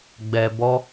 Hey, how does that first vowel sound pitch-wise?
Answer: low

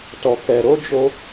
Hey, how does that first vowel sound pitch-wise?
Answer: low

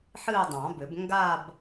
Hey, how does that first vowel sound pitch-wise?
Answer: falling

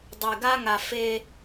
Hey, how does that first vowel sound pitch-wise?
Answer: low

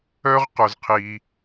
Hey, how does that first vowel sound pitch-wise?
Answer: high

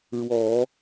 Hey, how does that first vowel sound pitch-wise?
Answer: low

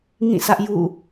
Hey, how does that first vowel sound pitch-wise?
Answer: falling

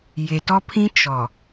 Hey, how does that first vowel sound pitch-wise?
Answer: low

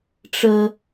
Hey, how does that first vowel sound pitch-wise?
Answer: high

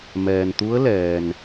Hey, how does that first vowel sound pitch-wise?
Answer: low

